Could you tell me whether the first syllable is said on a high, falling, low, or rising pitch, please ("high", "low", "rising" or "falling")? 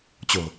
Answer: low